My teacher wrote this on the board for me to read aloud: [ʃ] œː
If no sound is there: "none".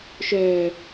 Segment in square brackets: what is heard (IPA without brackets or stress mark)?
ʃ